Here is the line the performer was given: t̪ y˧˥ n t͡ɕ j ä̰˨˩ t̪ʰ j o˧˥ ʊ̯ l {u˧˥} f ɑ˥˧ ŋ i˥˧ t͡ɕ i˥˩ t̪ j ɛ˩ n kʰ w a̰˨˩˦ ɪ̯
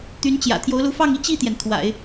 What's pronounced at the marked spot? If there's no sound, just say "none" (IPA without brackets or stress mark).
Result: u˧˥